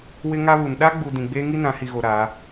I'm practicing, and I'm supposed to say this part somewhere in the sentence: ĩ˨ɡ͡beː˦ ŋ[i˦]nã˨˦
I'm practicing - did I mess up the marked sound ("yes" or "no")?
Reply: no